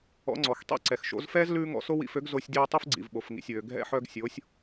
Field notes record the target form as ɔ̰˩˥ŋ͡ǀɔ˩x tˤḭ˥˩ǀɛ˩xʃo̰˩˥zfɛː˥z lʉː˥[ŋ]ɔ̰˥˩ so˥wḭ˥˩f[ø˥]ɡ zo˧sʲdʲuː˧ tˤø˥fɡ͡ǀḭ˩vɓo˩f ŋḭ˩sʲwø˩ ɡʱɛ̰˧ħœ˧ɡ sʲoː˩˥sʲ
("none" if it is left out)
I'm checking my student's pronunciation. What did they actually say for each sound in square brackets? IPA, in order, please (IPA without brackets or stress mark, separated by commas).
ŋ, ø˥